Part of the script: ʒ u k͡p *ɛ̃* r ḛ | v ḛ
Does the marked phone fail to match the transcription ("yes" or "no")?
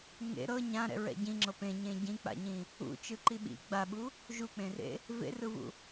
yes